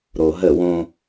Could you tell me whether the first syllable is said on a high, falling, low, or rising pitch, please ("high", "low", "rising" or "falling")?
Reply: low